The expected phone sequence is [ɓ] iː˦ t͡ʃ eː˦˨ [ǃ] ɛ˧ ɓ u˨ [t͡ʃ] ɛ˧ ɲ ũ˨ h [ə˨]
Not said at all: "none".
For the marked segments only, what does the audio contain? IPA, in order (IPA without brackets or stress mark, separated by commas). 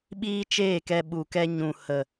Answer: ɓ, k, k, ə˨